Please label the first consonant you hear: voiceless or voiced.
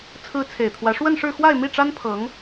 voiceless